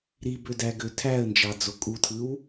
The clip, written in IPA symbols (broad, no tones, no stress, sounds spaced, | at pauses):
ɾ i b ø d æ ɡ ø tʰ æ ə̯ n d͡ʒ ɑ d͡z o kʼ u tʰ ɯ w